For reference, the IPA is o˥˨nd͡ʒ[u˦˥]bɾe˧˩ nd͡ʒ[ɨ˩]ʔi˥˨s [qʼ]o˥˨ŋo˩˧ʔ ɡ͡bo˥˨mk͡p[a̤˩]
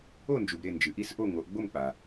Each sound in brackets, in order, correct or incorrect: incorrect: u˩, correct, incorrect: ʔ, incorrect: a˩

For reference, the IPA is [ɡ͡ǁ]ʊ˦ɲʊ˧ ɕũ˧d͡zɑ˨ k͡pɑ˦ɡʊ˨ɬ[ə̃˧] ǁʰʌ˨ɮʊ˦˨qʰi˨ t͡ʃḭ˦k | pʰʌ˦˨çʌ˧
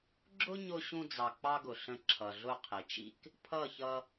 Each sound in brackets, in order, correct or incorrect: correct, correct

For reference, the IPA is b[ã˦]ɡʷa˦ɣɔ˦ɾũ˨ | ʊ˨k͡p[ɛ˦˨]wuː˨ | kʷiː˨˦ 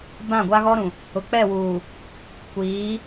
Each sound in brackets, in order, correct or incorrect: incorrect: ã˦˨, correct

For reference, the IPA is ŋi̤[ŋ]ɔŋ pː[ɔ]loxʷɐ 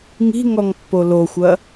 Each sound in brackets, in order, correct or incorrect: correct, incorrect: o

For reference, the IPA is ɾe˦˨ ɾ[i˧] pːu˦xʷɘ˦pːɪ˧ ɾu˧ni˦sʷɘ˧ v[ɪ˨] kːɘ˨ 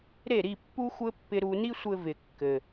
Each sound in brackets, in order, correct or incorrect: incorrect: i˦˨, correct

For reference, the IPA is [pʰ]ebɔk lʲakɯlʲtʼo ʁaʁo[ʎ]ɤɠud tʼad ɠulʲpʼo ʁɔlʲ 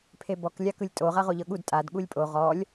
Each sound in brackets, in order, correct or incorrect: correct, correct

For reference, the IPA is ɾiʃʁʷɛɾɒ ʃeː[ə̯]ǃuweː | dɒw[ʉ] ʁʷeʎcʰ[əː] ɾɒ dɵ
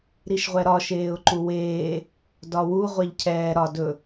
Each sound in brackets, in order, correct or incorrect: incorrect: ʊ̯, incorrect: u, incorrect: ɛː

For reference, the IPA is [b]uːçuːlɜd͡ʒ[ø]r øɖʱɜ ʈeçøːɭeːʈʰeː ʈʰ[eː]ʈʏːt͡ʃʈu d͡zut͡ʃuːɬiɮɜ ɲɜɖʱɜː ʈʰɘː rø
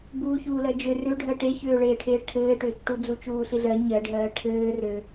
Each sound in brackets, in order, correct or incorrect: correct, correct, incorrect: ɘː

